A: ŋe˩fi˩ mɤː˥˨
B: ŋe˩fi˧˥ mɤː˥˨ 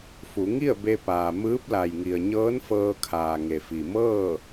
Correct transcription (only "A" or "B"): A